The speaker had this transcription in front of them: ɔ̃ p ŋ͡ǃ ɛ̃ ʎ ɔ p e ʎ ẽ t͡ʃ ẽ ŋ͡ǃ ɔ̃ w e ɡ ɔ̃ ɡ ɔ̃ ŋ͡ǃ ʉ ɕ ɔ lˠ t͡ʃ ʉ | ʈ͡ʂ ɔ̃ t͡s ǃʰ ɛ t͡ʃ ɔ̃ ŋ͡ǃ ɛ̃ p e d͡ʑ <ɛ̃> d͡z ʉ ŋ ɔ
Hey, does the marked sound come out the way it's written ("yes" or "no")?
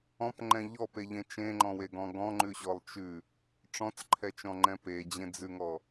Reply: no